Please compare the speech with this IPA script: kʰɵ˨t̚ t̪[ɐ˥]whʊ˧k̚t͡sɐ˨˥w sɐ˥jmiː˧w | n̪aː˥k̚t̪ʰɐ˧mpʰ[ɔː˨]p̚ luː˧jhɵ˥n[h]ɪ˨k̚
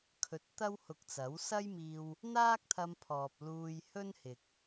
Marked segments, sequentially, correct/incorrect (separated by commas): correct, correct, correct